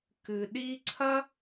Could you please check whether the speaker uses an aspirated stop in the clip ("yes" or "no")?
yes